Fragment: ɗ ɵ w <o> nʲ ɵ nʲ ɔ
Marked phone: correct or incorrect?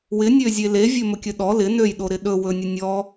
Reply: incorrect